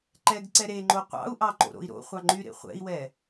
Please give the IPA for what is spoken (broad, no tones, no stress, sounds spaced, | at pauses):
ǃ ɛ ɡ ǀ ɛ ɾ e ŋ͡ǃ o qʷ ɑ̰ u̯ ʔ ɑ ǃ o̰ ɾ o̰ i̯ ɾ o̰ χʷ ɑ ŋ͡ǃ y ɾ ḛ χʷ ɛ̰ i̯ w ɛ